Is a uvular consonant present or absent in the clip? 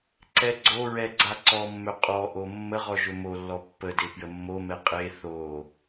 present